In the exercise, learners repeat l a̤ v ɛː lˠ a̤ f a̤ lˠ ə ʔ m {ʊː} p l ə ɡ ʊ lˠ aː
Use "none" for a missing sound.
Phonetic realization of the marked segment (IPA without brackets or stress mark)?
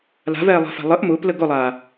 ʊː